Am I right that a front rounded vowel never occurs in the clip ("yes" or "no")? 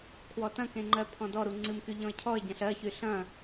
no